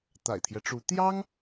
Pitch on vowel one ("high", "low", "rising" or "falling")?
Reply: low